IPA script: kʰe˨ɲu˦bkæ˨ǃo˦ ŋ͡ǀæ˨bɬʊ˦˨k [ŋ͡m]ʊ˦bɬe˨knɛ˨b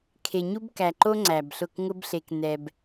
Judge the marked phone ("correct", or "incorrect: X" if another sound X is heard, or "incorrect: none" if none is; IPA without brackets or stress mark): incorrect: ŋ